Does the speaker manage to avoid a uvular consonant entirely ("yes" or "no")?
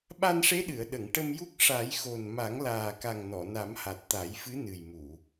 yes